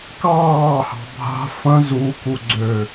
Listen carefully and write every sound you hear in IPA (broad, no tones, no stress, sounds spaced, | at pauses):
k ɑː h ɑ̤ bʱ a̤ f ə̃ z u k u ɡ͡ǀ ø